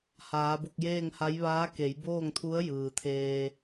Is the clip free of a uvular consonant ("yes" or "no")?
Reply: yes